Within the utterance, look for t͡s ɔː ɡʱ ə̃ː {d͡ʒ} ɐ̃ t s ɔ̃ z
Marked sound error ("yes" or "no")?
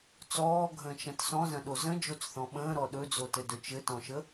yes